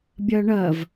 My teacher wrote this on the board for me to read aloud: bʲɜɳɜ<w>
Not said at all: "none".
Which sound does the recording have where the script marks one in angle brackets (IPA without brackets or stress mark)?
v